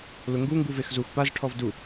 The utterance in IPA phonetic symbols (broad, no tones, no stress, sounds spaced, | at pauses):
l ʊ ŋ ɡ u ŋ ɡ u v e x z u x p a z ʈʰ ɔ v d u